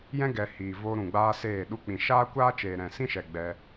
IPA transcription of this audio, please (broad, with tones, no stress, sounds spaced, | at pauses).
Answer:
j ɛ̃˦ ɡ ɛ˨ h iː˨ v oː˧ ɾ ũ˨ ɡ͡b aː˦ s eː˦˨ ɗ u˧ k͡p ĩ˨ ʃ aː˦ kʷ aː˦ t͡ʃ eː˨ ɾ ɛ̃˨ s ĩ˦ ʃ ɛ˨ ɡ͡b ɛ˧